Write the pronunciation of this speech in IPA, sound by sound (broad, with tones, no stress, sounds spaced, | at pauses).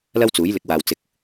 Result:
l ɐ˥ w t͡s uː˨˥ j l ɪ˨˥ k̚ w aː˨ w t͡s ɪ˨ k̚